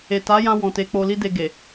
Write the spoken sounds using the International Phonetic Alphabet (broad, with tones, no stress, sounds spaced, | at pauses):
e˨ t a˨˦ j ã˧ w ɔ̃˨ t e˨˦ k͡p o˧ l i˦ d e˧ ɡ e˨